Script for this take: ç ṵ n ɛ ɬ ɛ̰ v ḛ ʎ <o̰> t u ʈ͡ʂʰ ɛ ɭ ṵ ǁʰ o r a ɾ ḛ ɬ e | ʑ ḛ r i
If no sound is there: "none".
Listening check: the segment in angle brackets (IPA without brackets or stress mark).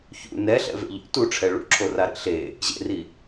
o̰